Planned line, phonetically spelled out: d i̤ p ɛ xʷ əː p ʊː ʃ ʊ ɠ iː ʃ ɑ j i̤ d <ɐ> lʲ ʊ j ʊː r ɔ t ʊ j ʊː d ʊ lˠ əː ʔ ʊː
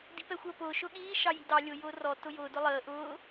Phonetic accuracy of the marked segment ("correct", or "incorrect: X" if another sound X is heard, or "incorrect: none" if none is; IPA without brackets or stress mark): incorrect: ɑ